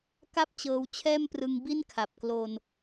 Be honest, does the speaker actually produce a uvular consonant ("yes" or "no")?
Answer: no